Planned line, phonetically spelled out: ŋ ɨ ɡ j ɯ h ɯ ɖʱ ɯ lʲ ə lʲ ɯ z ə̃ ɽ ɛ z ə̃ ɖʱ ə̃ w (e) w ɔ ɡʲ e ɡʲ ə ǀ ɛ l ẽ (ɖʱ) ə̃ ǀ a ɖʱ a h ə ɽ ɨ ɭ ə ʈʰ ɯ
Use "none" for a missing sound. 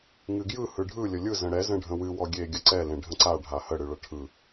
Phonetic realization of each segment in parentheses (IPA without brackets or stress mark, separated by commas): ɨ, ɖʱ